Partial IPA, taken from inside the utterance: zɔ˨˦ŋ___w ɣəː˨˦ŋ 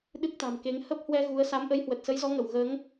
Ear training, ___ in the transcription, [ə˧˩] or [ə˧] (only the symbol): ə˧˩